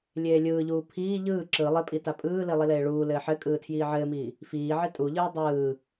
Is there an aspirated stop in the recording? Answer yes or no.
yes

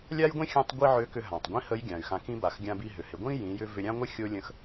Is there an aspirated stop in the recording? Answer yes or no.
no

